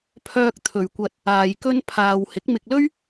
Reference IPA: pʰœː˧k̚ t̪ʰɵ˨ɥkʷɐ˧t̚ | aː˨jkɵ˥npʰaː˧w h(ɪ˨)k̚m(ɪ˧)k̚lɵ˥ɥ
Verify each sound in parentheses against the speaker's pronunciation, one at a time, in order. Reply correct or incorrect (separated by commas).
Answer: incorrect, correct